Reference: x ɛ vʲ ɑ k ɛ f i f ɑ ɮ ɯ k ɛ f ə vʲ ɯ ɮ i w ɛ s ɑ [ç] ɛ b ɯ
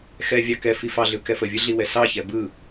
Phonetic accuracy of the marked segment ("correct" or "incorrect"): correct